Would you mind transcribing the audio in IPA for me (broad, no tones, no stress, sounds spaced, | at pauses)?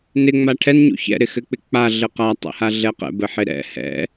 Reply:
n ɪ ŋ͡m a ʈʰ ɛ n ɲ ṵ ç ɛ̰ ɾ ɪ x ɘ k͡p ɪ k͡p a ɮ ɘ q a tˤ ɛ̰ h a ɮ ɛ q ɛ̰ b ɘ ħ ɪ ɾ ɛ̰ h ɛ̰